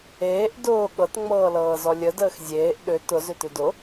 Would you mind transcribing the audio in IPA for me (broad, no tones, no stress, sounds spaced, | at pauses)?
eː ʔ d ʊː ɠ ɤ t ŋ͡m ɤː l ɤː z ɔ lʲ ə d əː x zʲ eː ʔ ɗ ʏ t ʊ z ʏ t ʏ d ʊ